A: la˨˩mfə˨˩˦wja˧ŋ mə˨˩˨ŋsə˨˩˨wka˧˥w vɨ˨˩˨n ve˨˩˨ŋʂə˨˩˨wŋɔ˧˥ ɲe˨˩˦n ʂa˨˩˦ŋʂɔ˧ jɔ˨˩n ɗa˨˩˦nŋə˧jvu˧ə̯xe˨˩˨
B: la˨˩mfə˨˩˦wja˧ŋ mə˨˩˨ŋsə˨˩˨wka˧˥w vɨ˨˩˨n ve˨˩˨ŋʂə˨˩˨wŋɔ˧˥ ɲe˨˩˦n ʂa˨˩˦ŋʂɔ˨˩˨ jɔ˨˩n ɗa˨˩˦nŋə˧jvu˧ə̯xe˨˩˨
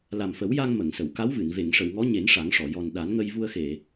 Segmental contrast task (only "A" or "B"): B